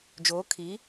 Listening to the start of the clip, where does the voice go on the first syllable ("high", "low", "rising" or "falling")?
rising